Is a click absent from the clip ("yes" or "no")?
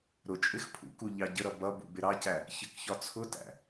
yes